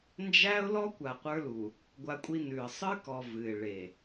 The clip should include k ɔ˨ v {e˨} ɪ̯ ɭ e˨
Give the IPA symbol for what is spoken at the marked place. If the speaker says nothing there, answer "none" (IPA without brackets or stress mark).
ɨ˨